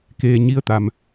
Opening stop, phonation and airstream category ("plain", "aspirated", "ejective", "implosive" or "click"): plain